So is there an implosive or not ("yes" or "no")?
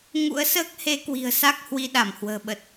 yes